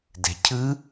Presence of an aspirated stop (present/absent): present